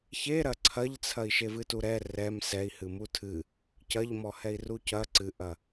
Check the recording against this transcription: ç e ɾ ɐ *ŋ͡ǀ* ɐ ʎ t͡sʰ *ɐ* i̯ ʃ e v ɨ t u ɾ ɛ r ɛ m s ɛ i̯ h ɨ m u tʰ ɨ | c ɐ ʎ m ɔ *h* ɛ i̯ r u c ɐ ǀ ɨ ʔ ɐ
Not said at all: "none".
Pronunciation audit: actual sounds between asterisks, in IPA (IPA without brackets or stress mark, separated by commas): ǀʰ, ɐ, h